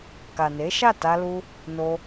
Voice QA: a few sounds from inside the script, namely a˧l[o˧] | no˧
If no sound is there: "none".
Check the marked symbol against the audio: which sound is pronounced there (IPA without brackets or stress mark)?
u˧